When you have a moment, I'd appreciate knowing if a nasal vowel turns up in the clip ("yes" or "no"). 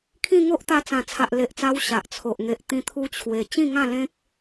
yes